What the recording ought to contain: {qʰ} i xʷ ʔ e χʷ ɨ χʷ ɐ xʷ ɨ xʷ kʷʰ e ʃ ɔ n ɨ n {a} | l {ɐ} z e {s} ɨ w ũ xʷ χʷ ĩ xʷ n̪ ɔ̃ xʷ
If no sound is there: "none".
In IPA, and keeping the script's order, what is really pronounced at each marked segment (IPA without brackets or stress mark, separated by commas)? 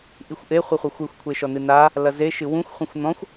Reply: ʔ, a, ɐ, ʃ